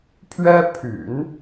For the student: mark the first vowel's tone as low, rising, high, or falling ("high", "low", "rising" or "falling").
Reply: high